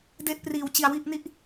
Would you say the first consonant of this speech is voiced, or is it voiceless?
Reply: voiced